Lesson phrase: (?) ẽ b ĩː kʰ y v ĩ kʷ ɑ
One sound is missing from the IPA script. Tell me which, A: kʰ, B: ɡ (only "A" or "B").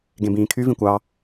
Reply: B